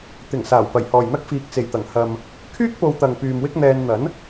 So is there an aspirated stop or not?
yes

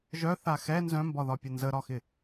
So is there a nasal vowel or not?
yes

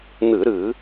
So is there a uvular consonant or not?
no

